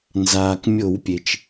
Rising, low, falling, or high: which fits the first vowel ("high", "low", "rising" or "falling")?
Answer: low